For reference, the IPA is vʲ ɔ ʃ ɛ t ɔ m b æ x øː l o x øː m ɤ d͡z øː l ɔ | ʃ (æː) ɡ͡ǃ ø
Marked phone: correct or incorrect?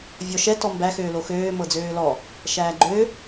correct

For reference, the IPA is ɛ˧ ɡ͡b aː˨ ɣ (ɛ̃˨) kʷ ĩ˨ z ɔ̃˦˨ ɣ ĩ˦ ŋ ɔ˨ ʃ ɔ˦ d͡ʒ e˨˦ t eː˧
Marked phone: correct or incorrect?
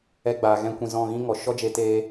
incorrect: ɛ̃˧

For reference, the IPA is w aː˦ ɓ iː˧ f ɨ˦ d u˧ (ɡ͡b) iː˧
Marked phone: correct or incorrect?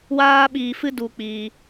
incorrect: k͡p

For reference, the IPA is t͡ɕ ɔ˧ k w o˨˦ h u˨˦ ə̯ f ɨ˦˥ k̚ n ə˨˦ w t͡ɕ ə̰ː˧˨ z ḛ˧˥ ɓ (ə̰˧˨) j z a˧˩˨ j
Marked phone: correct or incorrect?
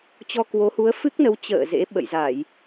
correct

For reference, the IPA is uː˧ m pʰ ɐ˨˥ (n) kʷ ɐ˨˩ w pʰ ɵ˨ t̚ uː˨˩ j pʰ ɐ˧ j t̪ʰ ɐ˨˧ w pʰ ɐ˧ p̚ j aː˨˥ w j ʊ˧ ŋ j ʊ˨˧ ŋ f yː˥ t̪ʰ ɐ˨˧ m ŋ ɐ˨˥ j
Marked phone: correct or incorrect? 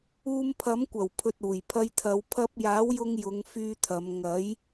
incorrect: m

